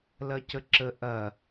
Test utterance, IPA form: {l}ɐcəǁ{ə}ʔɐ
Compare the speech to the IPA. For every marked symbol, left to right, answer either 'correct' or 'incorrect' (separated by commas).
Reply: correct, correct